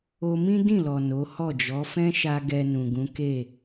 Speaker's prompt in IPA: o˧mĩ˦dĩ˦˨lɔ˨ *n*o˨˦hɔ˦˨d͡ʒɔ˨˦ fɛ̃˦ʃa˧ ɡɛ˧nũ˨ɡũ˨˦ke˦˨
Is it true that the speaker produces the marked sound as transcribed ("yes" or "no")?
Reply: yes